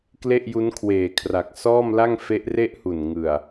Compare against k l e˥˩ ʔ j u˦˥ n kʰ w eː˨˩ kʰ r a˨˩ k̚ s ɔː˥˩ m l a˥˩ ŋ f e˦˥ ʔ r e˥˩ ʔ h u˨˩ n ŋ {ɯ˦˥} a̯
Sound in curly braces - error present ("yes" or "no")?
yes